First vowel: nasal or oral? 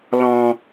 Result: nasal